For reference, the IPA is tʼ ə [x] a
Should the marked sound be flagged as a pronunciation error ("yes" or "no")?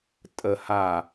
yes